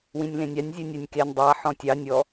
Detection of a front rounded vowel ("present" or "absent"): present